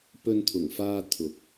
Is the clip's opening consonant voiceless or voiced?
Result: voiceless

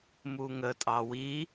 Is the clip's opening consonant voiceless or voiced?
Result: voiced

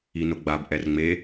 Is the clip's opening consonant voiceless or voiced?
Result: voiced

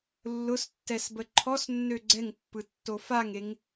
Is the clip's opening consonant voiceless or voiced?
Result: voiced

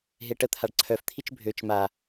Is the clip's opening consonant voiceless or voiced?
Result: voiced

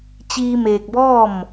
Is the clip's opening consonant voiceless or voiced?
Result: voiceless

